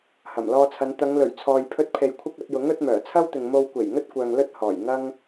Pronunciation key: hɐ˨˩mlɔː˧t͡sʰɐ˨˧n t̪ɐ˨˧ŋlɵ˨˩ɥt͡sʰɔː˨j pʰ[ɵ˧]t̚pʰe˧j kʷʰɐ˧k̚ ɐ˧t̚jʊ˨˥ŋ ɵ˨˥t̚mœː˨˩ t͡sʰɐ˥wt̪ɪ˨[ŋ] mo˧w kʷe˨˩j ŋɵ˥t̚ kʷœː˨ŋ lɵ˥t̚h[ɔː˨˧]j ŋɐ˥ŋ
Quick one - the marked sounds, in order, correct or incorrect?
incorrect, correct, incorrect

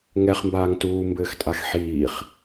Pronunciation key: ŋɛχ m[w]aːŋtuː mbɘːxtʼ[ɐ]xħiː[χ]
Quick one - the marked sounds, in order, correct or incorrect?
incorrect, incorrect, correct

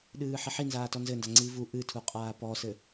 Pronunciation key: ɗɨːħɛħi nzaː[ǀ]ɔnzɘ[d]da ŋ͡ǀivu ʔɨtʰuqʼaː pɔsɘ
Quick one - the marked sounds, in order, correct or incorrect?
incorrect, incorrect

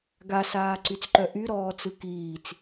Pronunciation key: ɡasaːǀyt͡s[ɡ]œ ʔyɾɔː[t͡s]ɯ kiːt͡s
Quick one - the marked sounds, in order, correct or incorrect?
incorrect, correct

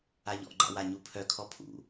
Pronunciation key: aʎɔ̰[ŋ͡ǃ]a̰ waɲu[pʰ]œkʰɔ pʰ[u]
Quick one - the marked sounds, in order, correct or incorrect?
incorrect, correct, incorrect

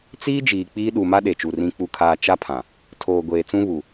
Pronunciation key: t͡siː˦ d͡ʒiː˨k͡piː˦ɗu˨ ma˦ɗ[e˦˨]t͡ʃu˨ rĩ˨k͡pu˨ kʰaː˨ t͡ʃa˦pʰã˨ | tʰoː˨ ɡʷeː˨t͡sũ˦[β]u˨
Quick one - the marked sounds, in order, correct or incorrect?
incorrect, correct

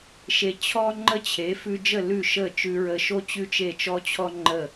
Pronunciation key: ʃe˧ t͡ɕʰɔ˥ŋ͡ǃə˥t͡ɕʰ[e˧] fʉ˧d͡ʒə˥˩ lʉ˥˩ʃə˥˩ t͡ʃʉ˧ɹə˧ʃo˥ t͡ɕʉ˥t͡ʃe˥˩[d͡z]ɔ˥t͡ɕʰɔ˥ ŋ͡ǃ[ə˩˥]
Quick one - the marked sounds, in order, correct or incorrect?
incorrect, incorrect, incorrect

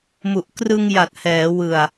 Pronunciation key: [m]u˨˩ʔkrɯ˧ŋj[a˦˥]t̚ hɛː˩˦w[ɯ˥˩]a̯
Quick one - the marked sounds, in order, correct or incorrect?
correct, incorrect, incorrect

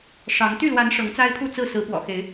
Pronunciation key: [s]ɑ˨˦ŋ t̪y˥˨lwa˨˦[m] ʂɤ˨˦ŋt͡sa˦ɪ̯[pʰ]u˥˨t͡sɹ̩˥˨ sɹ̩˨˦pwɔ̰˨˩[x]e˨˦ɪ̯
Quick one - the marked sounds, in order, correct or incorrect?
incorrect, incorrect, correct, correct

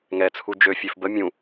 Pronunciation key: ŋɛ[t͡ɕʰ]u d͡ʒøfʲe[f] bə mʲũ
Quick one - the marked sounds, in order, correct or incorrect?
incorrect, correct

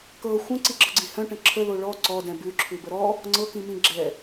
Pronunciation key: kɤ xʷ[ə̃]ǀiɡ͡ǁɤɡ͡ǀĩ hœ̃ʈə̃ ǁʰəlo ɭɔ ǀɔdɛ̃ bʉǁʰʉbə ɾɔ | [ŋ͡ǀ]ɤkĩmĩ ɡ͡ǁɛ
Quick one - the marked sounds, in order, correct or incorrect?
correct, correct

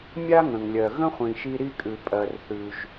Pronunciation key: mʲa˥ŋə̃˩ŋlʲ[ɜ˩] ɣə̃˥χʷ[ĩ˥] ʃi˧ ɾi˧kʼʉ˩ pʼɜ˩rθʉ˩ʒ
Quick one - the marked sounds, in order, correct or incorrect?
correct, incorrect

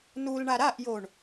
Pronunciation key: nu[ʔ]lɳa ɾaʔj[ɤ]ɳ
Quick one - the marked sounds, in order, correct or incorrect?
incorrect, incorrect

